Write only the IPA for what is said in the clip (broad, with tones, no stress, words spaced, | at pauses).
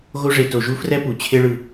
ɣo˦ʐe˨ to˨ʒu˥ frɛ˥pu˩ t͡ɕʰe˦ɭɯ˨